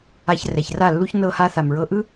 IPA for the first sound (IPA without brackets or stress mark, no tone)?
a